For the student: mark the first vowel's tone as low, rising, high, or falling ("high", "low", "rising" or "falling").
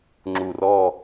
low